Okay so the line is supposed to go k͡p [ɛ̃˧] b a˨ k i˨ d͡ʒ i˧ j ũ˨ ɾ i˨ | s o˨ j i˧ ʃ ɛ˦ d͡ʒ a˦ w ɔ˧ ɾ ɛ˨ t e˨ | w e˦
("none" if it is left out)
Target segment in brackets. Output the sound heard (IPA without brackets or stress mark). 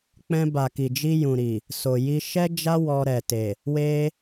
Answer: ɛ̃˧